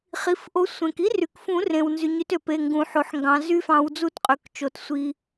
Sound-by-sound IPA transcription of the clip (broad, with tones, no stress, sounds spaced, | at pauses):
χ i˩˧˩ f ʔ o˨˦ sʷ ẽ˩ k i˦˥ r y˩ k f ũ˨˩˦ r ẽ˩ w n z y˩ ɲ y˨˦ t ø˩ p e˩˧˩ ŋ ɡ ũ˨˩˦ ħ o˩˧˩ ħ ŋ ɡ ɑ̃˨˦ z y˦˥ f ɑ̃˨˦ w d͡z u˦˥ t qʼ ø˩˧˩ k t͡ʃ o˩ t sʷ i˩